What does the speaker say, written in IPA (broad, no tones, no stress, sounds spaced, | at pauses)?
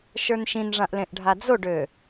ʃ ə˞ n ʃ ĩ n ʐ ã ʔ l ẽ ʔ ɖʱ a d͡z o ɖ ø